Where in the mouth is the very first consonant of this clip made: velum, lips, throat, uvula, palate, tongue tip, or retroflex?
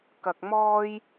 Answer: velum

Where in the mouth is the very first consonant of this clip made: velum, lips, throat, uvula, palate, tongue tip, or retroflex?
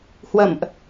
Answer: throat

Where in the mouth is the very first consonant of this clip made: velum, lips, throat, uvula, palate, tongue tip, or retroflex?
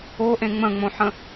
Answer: throat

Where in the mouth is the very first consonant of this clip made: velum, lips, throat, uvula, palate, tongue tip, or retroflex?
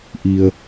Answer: throat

